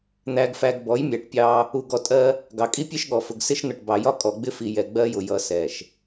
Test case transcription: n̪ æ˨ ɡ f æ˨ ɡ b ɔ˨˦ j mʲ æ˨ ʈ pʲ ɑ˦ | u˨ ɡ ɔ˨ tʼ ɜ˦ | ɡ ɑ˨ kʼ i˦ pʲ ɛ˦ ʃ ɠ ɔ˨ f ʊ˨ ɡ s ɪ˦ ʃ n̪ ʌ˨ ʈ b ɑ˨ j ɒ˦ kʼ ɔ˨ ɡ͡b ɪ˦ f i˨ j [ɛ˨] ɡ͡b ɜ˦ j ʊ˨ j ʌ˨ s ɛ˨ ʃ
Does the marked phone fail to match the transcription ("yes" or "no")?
no